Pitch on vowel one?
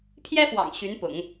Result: high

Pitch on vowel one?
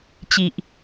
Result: low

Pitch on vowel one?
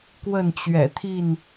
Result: falling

